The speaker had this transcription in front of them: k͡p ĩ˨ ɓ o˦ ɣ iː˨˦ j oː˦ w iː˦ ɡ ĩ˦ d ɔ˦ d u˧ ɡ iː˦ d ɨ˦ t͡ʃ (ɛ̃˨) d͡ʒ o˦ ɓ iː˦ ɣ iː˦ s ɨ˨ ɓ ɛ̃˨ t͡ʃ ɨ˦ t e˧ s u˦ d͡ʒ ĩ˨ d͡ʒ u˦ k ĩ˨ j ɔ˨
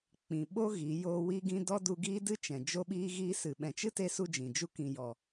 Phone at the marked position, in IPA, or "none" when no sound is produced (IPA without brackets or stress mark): ɛ̃˨